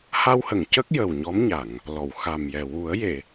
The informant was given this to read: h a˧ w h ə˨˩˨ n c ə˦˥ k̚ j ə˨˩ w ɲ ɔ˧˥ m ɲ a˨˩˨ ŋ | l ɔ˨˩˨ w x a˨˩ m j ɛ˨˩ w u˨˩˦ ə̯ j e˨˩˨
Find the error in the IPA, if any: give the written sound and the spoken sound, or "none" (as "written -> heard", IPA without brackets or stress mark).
n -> ŋ